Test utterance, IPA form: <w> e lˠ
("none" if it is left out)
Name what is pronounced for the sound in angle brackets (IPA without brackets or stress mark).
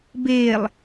b